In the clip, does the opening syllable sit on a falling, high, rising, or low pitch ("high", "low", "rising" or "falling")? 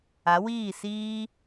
rising